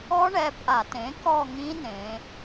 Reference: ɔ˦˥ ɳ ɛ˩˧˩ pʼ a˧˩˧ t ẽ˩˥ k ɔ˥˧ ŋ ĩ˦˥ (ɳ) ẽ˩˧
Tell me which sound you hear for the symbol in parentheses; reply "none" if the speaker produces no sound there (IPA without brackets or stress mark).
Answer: n